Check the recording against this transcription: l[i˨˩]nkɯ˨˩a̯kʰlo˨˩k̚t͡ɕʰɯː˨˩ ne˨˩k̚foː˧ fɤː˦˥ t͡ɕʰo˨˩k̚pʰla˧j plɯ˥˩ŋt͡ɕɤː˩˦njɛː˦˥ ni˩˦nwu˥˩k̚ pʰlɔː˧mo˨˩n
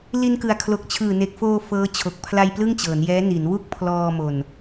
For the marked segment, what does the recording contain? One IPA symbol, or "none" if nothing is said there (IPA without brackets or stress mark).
i˧